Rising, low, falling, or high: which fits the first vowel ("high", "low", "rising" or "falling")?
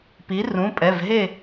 rising